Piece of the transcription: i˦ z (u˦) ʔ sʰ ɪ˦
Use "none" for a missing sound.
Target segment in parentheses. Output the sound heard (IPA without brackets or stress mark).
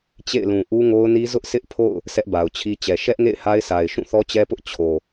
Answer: ʊ˦